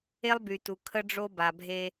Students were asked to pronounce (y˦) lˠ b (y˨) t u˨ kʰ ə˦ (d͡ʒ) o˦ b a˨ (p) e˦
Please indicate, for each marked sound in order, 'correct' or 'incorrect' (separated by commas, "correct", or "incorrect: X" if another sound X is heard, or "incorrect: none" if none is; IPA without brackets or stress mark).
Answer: incorrect: e˦, correct, incorrect: ɖ͡ʐ, incorrect: bʱ